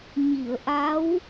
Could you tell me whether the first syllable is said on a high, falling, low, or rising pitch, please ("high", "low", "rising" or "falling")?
low